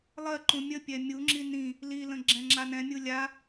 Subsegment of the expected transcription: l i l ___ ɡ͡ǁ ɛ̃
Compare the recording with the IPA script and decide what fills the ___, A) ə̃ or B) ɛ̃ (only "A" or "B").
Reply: A